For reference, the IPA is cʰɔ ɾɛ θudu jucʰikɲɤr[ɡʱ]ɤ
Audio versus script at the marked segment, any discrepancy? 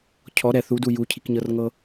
yes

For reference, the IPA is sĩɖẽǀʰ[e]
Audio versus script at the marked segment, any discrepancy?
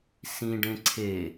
no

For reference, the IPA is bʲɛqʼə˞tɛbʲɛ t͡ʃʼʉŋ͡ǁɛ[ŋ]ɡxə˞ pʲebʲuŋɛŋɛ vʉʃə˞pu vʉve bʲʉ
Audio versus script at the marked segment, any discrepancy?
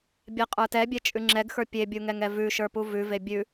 yes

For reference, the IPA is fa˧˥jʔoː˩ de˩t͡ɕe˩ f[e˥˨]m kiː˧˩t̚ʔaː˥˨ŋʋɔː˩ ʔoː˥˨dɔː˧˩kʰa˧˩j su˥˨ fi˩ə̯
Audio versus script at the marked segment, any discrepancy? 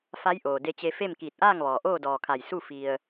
no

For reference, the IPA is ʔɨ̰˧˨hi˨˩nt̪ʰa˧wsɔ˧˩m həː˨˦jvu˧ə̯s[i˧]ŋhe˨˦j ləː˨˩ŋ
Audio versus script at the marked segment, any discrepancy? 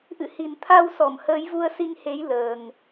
no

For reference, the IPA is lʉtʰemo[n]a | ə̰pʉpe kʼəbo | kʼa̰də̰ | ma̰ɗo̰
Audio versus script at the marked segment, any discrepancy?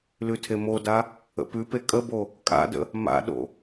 yes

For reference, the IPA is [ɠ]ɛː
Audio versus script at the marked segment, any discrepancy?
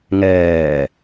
yes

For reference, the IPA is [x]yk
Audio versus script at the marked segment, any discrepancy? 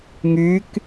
yes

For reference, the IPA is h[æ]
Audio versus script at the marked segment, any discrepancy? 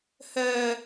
yes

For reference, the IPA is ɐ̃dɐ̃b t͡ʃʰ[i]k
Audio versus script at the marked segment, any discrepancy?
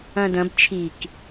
no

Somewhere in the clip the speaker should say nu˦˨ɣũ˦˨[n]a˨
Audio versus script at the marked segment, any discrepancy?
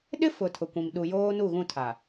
yes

